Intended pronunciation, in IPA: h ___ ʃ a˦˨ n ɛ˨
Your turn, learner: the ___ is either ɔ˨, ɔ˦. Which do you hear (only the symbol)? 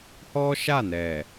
ɔ˦